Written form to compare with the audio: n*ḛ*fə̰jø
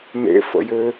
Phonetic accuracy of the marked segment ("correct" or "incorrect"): correct